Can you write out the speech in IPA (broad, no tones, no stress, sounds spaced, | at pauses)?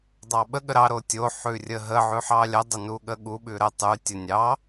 dˤ ɑ ɓ ə ɠ ə ɾ ɑ ɾ o tʲ o ħ ʉ rʲ ə ɦ ə ʕ ʉ ħ ɑ lʲ ə dˤ ə n u ɠ ə ɠ u ɓ ʉ ɾ ə tˤ ʉ tʲ ə nʲ ɑ